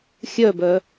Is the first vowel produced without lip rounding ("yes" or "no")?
no